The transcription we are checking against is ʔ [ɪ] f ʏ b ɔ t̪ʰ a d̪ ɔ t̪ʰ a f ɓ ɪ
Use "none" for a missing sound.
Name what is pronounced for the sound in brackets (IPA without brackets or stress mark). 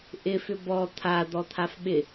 ɪ